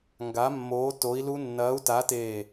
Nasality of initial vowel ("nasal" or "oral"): oral